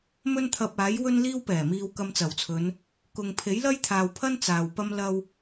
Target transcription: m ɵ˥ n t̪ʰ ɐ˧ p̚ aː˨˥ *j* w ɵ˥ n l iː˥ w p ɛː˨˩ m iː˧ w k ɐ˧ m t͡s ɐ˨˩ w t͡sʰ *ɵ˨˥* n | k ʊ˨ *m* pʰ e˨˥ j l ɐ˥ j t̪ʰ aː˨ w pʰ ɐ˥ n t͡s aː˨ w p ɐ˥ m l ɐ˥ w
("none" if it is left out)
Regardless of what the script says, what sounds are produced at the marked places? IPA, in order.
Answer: j, ɵ˨˧, ŋ

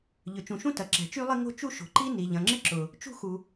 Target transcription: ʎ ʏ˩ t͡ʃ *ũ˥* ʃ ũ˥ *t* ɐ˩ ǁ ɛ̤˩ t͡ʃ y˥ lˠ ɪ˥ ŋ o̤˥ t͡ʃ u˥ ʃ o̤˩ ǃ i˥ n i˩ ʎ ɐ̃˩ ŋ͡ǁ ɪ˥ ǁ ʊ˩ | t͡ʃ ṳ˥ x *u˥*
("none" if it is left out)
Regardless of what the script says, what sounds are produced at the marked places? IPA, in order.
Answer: ũ˩, t, u˩

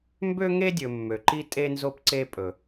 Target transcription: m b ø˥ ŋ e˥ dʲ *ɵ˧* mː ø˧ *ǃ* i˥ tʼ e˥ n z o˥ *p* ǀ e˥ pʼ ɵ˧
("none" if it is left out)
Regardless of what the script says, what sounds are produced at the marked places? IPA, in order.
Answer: ɵ˧, ǃ, p

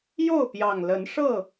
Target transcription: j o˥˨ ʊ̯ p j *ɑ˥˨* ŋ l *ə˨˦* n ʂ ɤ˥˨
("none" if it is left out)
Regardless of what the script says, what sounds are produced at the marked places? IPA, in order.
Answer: ɑ˨˩, ə˨˦

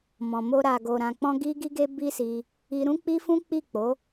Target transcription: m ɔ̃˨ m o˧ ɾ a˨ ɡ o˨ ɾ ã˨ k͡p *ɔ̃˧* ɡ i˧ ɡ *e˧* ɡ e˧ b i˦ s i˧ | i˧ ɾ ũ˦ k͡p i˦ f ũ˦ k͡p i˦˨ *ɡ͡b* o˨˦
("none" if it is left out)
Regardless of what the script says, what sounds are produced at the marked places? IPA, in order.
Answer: ɔ̃˧, i˧, k͡p

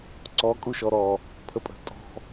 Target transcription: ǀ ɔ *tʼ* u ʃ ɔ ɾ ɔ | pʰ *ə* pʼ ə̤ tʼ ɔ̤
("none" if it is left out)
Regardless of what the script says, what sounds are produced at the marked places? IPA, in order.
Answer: kʼ, ə

